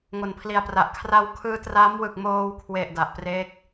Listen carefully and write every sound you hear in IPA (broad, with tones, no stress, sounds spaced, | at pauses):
ŋ o˩˦ n pʰ l i˨˩ a̯ p r a˨˩ ʔ kʰ r a˧ w kʰ ɯː˧ t r a˦˥ m w ɯ˨˩ k̚ m oː˧ w kʰ w e˨˩ ʔ d a˨˩ ʔ p r e˦˥ k̚